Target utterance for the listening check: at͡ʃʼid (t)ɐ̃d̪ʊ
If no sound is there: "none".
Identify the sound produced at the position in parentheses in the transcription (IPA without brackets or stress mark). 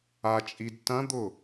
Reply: t